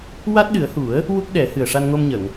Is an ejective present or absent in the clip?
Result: absent